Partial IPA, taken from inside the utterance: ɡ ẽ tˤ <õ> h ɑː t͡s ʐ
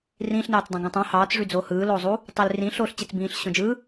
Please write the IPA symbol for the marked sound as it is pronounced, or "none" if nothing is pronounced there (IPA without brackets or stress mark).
õ